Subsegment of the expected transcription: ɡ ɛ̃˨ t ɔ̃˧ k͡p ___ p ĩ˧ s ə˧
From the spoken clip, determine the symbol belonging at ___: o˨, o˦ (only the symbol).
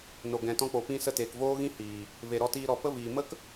o˨